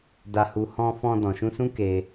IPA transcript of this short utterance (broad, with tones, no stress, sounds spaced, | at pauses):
d a˨ h u˨ h ɔ̃˧ f ɔ̃˧ d ɔ̃˨ ʃ ũ˧ s ũ˦ k e˧